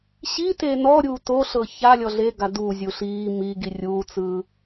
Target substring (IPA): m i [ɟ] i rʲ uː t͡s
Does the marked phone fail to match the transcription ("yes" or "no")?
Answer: yes